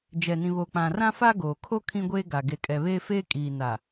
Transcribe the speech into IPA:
d͡ʒ ɛ˨ n ĩ˨ β o˨ k͡p ã˨ r ã˦ f a˦ ɡ oː˨ kʰ o˦ kʰ ĩ˦ ɡʷ eː˦ ɡ a˨ ɡ e˨ kʼ ɛ˨ β eː˦ f eː˦ kʼ iː˨ n a˨

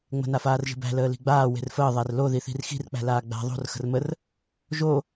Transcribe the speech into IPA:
ŋ͡m ə̤ n a f aː r ʒ i̤ b æ̤ l əː l i̤ ɡ͡b aː w e̤ r f əː ðˤ æ r l o ð i θ i̤ r x i̤ r k͡p æ̤ l aː ɡ͡b æ̤ ðˤ o̤ r x ə̤ r m ə r | ʒ o

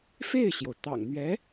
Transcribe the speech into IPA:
f e˥˩ ɪ̯ ɕ j o˩ ʊ̯ t̪ ɑ̰˨˩ ŋ n̪ ɥ ɛ˧˥

